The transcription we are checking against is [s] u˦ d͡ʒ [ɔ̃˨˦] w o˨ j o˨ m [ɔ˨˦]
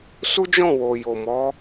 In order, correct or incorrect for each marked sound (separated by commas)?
correct, incorrect, correct